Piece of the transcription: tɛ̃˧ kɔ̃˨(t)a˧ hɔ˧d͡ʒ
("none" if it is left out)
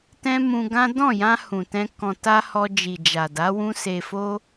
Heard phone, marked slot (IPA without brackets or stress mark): t